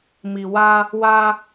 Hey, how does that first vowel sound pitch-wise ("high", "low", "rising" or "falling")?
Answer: low